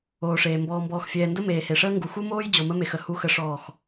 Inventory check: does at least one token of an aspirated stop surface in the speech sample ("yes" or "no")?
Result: no